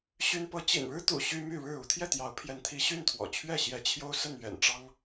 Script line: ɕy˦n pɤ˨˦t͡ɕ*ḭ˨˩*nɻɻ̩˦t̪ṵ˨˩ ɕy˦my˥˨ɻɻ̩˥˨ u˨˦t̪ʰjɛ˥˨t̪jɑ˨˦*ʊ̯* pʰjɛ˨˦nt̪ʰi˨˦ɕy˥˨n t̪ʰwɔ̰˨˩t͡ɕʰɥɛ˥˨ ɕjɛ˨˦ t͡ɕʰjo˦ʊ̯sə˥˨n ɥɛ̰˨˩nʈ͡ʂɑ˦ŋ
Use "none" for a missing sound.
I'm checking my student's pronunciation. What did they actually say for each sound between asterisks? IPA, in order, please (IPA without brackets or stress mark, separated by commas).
ḭ˨˩, ʊ̯